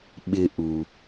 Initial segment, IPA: ɓ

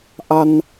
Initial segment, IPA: ʔ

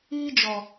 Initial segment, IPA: iː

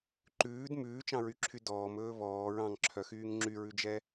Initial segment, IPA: ǃ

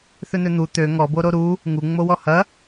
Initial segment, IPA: θ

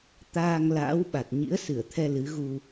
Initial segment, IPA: t̪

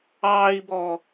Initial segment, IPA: ɑː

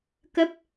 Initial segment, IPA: k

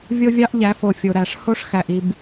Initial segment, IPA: vʲ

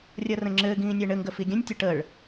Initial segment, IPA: rʲ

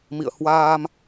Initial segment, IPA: m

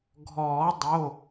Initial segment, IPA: ɡʱ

